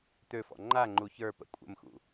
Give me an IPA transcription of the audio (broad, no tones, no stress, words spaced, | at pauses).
t̪øfɔ̰ ŋ͡ǃa ŋ͡ǃuçə˞pə̰ kʷʼə̰mxṵ